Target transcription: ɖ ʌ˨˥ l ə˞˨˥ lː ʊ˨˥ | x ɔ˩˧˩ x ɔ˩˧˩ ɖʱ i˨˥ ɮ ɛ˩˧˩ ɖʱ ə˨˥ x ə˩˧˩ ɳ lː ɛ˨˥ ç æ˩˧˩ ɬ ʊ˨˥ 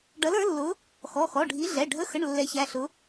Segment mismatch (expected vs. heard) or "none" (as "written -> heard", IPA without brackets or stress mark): none